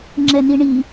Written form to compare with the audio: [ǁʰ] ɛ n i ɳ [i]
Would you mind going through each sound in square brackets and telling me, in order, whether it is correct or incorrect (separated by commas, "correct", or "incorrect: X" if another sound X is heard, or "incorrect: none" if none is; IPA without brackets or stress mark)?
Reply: incorrect: ŋ͡ǁ, correct